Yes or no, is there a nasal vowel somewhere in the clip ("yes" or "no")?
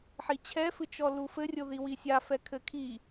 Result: no